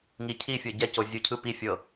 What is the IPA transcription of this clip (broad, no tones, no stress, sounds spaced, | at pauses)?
ŋ i cʰ i fʲ ɤ ɟ ɛ c o zʲ u cʰ ɯ p i fʲ ɤ